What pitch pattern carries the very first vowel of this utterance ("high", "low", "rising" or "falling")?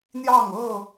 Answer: falling